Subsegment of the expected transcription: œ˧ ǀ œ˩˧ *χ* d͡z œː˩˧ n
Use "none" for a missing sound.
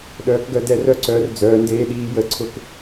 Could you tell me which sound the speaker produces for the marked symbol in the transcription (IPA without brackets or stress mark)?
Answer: r